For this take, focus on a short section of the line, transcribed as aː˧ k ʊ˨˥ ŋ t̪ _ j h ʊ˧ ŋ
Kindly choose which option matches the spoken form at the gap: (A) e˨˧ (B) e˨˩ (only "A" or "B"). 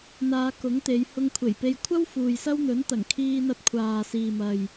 A